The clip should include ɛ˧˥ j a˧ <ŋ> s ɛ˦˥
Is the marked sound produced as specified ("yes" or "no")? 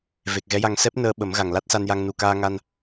yes